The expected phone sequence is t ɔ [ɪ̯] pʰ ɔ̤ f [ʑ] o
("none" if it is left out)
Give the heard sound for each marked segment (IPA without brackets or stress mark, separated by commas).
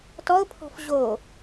ʊ̯, ʑ